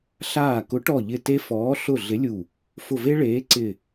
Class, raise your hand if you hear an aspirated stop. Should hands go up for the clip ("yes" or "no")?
no